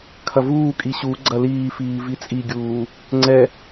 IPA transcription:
kʰ ɐ v uː kʼ i ɕ u ɡ͡ǀ ɐ l iː f iː v i t͡sʼ i ɡʲ uː | ŋ͡ǀ ɛ

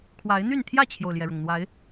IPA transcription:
kʰ w a˨˦ ɪ̯ n̪ y˥˨ n t̪ʰ j ä˥˨ t͡ɕʰ j o˩ ʊ̯ l j ɛ˩ ɻ ʊ˩ ŋ n̪ w a˨˦ ɪ̯

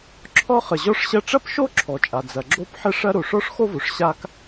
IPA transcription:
ǁʰ ɔ˥ χ ə˩ ʑ ɔ˥ ʂ ɕ ɐ˥ ʈ͡ʂ ɐ˥ p ʃ o˥ ǁʰ ɔ˩ t͡ʃʼ a˩ d͡z ɐ˩ ɡ͡ǁ o˥ p ħ ə˥ ʂ ɐ˥ ɾ o˩ ʂ ɔ˥ ʂ x o˥ v o˩ ʂ ɕ a˥ k

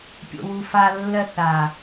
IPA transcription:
pʲ o̰ w u f a lː ɜ θ a

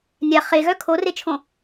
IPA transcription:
nʲ a χ e ɣ œ kʰ o r e t͡ʃʰ õ

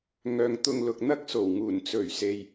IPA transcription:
ŋ œː˨ ŋ t̪ ʊ˧ ŋ l ʊ˨ k̚ n̪ ɐ˥ k̚ s o˨˩ w ŋ uː˨˩ n t͡s ɵ˨˩ ɥ s e˧ j

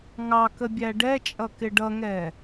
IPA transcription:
ŋ ɑ k ə bʲ æ ɖ ɛ t͡ʃʼ ʌ k ɪ ɖ ʌ ŋ ɛ

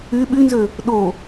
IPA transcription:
y ɓ y n z ø | ɗ o

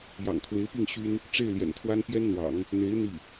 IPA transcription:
j ɑ̰˨˩ ŋ t̪ʰ w e˧˥ ɪ̯ p i˥˩ ŋ ɕ y˥ n | ʈ͡ʂ e˥˩ ɪ̯ l j ɛ̰˨˩ n t̪ʰ w a˥ n p j ɛ˥ n n̪ w ɑ̰˨˩˦ ŋ | n̪ e˧˥ ɪ̯ n̪ i˥˩

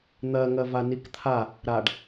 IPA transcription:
n̪ ɜ ŋ ɜ v a n i k t̪ʰ a | ɾ a ɖ

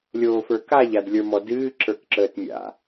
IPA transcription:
lʲ oː f ə˞ k a ʎ a d lʲ ə˞ m ɔ d ɨː ǁ ə˞ k ǁ əː t mʲ a̰

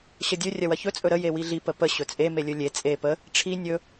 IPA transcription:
ɕ ə dʲ ɵ rʲ ɐ w ɐ ç ɵ t͡sʼ ɵ ɾ ə j e w i ɮ i p ə p ə ɕ ɵ t͡sʼ e m e lʲ ɵ lʲ e t͡sʼ e p ə | ʈ͡ʂʰ i nʲ ɵ

